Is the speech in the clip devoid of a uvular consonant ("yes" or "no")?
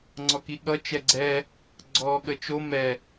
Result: yes